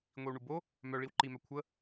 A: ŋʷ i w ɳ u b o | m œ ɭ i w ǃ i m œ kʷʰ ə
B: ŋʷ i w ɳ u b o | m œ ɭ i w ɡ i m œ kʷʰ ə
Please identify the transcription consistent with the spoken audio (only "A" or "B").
A